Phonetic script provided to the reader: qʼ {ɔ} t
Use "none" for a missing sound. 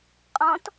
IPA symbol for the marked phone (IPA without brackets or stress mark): ɔ̃